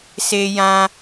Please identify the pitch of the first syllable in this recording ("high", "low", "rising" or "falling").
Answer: high